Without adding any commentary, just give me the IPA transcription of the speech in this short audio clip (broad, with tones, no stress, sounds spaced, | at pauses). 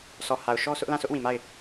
s ɔ˨ h a˨ ʊ̯ ʃ ɔ˦ s ʊ˦ ʔ l ã˦˨ sʰ ʊ˦ ʔ w ĩ˨ m a˦˨ ɪ̯